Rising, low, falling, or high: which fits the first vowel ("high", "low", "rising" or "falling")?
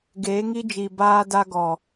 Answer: rising